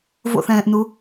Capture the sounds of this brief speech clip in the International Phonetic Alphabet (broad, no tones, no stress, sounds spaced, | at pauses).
v o̰ θ ɛ̃ː ʔ n u